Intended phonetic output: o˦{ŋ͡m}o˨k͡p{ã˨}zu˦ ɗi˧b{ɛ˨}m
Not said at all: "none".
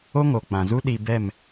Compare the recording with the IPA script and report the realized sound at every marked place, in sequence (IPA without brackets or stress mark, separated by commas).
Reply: ŋ, ã˨, ɛ˦˨